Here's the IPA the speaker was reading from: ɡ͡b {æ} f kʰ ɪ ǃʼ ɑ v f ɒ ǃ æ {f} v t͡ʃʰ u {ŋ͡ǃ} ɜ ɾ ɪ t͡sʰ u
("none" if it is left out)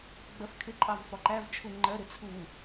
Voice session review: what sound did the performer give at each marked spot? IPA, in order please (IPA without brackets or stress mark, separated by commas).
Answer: ɜ, none, ŋ͡ǃ